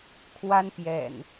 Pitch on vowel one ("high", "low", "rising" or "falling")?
high